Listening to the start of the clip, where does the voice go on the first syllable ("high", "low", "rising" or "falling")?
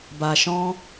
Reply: low